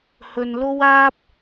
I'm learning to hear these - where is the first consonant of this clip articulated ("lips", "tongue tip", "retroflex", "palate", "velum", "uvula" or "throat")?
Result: throat